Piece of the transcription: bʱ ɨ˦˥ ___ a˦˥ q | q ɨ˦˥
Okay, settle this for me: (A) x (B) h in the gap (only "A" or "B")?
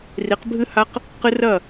B